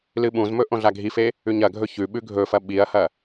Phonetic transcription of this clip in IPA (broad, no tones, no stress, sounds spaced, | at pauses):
l ɨ ɓ ũ z m ɵ ʔ õ ɮ a ɡʱ i f e | ʉ ɲ ɐ ɡʱ ɵ ç ʉ ɓ ʉ ɡʱ ɵ f ɐ ɓ i ɐ̯ h ɐ